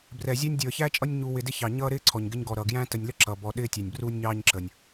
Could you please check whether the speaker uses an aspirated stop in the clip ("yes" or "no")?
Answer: yes